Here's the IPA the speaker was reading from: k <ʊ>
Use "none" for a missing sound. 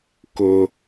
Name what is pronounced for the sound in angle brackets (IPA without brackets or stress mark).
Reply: ʊ